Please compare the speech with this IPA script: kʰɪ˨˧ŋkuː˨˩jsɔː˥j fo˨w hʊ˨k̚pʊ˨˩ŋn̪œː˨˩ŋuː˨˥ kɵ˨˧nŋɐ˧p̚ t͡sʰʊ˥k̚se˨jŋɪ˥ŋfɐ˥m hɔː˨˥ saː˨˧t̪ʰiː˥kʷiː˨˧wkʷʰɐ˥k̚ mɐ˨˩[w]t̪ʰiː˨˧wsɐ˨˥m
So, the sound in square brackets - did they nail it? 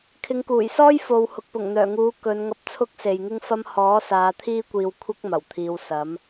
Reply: yes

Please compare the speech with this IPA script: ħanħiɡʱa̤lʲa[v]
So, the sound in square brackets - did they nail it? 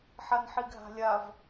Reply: yes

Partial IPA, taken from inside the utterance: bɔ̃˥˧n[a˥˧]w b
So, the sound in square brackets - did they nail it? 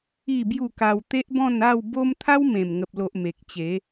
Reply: yes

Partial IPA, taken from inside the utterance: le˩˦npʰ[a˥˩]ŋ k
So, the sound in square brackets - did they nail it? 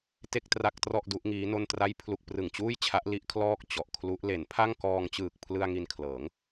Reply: yes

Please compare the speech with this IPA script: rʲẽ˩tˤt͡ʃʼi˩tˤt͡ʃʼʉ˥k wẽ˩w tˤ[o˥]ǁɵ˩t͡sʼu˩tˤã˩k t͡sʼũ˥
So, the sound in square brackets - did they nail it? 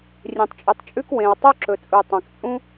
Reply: yes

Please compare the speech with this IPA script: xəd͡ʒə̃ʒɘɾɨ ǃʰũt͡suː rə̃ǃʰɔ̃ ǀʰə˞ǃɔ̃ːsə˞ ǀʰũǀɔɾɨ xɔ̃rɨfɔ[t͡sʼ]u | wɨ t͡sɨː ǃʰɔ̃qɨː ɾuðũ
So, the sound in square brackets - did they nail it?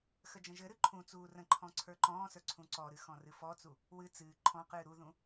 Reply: no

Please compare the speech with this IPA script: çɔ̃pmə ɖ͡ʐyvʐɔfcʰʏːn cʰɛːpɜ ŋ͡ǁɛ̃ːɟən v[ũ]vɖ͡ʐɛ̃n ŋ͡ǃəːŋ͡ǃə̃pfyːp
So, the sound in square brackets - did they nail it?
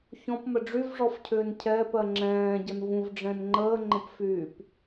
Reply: yes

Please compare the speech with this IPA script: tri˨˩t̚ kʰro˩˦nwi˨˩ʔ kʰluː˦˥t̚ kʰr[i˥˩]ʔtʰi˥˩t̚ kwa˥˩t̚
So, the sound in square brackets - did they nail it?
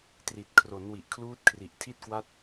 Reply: no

